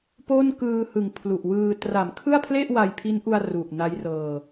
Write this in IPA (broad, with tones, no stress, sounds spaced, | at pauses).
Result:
p o˥˩ n k ɯː˧ h ɯ˨˩ ŋ pʰ l u˨˩ ʔ w ɯː˧ t r a˩˦ m kʰ ɯ˥˩ a̯ pʰ l e˥˩ ʔ w a˧ j pʰ i˦˥ n ʔ u˧ a̯ r u˨˩ ʔ n a˦˥ j r ɤː˧